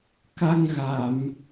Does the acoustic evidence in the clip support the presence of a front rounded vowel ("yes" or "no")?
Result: no